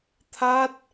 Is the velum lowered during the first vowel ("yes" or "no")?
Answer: no